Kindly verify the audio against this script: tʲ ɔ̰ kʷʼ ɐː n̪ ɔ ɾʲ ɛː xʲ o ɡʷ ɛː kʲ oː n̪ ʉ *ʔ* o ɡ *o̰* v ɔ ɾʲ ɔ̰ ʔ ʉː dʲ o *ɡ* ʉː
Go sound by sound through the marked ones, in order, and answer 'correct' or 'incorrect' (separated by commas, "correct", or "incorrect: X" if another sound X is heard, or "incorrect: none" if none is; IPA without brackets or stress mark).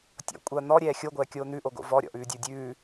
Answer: correct, correct, incorrect: dʲ